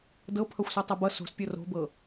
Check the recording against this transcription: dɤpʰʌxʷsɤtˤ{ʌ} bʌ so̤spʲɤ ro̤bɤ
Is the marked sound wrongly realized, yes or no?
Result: no